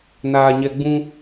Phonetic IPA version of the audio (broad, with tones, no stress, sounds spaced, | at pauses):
n aː˨ ɲ ɛ˨ ɡ͡b ũ˦